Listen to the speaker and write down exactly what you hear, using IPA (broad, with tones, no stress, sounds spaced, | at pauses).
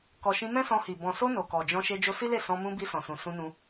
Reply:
k ɔ˨ ʃ ĩ˧ m ɛ̃˦ s ɔ̃˧ h i˨ b ɔ̃˨ s o˧ n o˨ k ɔ˨ d͡ʒ ɔ̃˧ ʃ e˧ d͡ʒ o˧ s i˦ l e˦˨ s ɔ̃˧ m ũ˧ b i˧ s ɔ̃˨ s ũ˨ s ũ˧ n ũ˧